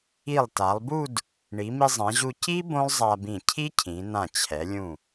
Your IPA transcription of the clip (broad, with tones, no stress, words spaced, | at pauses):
i˧˩lˠta˩˧lˠbu˥˧d | ɳi˩˧mi˧zˤɛ̃˩˧ʑu˧ ci˥ bõ˥lˠzˤa˧bĩ˧˩ cʰi˥cʰĩ˩˧ nã˧˩t͡ɕʰɛ˩˧ lʲũ˧˩